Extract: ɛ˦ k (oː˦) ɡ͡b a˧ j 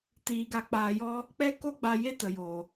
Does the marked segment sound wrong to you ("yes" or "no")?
yes